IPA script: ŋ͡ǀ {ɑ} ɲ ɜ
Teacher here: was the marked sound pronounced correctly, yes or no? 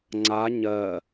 no